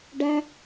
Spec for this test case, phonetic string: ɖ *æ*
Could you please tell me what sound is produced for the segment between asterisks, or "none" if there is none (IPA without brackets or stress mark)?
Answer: æ